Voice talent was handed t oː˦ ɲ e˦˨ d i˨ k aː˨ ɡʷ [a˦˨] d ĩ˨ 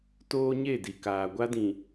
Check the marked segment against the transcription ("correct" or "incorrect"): incorrect